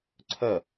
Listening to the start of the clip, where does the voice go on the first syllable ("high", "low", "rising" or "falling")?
falling